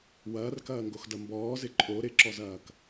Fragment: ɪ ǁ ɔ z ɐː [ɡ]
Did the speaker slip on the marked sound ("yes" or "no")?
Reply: yes